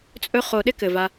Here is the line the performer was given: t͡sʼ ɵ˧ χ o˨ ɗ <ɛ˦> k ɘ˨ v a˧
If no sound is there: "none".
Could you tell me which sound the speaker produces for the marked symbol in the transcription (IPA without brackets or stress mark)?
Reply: ɪ˦